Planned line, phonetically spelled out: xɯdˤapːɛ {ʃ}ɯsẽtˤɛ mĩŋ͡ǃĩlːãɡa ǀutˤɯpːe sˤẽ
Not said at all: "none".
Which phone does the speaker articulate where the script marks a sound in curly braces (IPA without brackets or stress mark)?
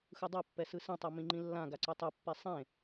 s